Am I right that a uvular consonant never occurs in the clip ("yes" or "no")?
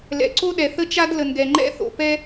yes